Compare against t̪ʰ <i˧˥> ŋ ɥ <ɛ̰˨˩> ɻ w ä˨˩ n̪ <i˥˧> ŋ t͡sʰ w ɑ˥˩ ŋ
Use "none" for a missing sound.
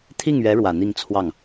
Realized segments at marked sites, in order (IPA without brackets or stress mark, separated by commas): i˥˩, ɛ˧˥, i˥˧